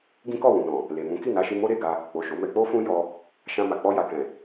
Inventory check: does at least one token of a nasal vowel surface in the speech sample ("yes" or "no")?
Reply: yes